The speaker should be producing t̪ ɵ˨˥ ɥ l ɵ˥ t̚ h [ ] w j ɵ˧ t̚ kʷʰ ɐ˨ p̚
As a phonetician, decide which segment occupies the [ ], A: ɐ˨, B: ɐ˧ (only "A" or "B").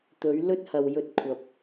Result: A